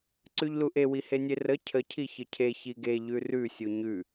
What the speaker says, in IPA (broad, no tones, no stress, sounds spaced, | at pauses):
ǀ ʉ ʎ l u ʔ e w i h e nʲ e r ə cʰ ə cʰ i ç ə cʰ e ç i ɡ e ʎ ʉ r ʉ sʲ u ɲ ʉ